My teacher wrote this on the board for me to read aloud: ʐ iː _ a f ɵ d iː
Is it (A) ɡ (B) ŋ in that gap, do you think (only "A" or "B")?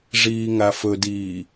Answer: B